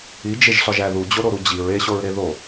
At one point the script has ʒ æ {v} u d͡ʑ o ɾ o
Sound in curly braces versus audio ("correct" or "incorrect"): incorrect